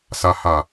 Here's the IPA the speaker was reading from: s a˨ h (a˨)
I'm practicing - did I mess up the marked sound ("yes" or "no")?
no